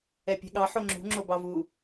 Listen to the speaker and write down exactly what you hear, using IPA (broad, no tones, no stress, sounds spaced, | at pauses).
ɛ pʲ ɛ̤ ɠ ɑ ħ o ŋ͡ǁ ṳ ŋ͡ǁ o b ɑ v u